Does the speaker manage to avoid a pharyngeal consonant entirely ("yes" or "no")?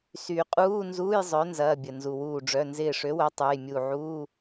no